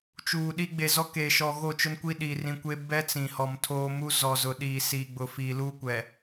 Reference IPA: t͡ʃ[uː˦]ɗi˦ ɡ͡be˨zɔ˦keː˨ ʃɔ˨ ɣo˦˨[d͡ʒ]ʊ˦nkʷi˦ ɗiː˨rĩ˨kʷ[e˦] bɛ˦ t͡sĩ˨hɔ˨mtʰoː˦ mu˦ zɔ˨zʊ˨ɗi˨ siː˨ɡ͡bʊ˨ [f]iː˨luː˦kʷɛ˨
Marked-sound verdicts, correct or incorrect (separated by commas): incorrect, incorrect, correct, correct